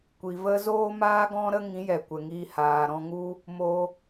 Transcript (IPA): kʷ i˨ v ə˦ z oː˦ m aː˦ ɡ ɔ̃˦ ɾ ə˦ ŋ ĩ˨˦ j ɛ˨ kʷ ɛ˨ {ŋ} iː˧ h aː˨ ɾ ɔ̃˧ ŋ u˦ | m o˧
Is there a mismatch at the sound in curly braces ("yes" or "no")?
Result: no